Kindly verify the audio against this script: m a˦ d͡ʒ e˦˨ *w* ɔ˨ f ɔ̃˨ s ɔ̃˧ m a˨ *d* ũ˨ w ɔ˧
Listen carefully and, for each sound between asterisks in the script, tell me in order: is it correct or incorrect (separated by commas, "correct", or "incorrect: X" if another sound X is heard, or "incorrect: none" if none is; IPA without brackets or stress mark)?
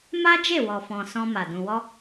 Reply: correct, correct